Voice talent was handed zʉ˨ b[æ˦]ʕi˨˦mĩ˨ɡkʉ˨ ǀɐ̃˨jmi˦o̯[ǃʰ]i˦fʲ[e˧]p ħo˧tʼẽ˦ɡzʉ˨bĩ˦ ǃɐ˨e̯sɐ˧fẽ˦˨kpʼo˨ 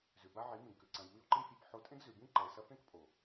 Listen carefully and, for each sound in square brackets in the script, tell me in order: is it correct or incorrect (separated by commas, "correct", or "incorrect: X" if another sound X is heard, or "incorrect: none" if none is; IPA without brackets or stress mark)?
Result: incorrect: a˦, incorrect: ǃ, correct